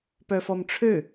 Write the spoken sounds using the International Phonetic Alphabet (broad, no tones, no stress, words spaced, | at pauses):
pœfɔmʈ͡ʂʰø